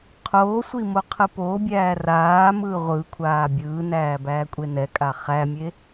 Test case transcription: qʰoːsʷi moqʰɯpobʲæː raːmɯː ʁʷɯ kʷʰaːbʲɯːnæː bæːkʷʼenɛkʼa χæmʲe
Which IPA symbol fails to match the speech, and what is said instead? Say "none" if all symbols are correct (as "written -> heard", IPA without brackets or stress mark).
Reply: none